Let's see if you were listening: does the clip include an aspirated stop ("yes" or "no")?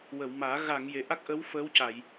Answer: no